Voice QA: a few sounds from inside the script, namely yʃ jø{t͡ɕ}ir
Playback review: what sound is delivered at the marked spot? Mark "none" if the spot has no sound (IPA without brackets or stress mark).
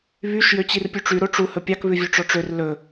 t͡ɕ